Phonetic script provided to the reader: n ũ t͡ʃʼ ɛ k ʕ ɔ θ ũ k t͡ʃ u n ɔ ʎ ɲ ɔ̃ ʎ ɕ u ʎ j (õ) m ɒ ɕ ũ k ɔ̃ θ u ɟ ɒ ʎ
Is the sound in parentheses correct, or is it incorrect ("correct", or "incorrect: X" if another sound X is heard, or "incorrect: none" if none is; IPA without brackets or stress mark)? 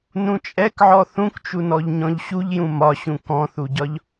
incorrect: ũ